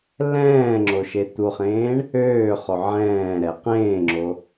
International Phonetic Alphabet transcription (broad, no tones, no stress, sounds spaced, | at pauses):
l ɛ̃ː ŋ͡ǁ o ʃ e t̪ u χ ẽː ɳ | øː χ o ʕ ɛ̃ː ɾ ɛ q ẽː ŋ͡ǁ o